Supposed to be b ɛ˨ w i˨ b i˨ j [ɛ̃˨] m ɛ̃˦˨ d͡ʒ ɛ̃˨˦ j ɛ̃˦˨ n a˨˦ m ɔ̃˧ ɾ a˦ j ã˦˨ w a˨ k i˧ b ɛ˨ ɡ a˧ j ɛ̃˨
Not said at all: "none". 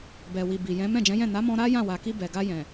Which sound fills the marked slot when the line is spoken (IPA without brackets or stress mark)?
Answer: ɛ̃˨˦